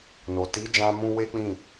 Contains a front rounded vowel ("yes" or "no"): no